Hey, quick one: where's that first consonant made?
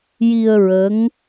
palate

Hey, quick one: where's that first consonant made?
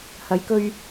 throat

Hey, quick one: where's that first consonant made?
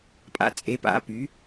lips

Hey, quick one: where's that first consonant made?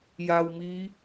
palate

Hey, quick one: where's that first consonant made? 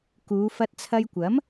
velum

